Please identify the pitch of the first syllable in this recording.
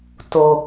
low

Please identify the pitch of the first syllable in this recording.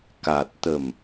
low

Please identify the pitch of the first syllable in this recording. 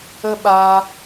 high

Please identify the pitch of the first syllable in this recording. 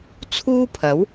high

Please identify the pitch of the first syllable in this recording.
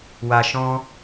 low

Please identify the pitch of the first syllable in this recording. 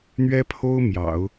high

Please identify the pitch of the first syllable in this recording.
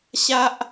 high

